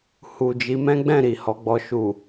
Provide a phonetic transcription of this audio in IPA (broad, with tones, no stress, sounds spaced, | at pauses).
h u˨ d͡ʒ i˨˦ m ɛ̃˦ ɡ͡b ɛ̃˦˨ ɾ i˨ h ɔ˨˦ ɡ͡b ɔ˧ ʃ u˨